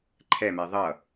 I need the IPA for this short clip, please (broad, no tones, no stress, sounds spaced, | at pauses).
ǃʰ ɛ m ɛ ðˤ ʌ